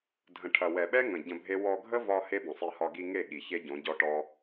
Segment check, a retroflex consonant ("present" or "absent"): present